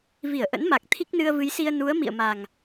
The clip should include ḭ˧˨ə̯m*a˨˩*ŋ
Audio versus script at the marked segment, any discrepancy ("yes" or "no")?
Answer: no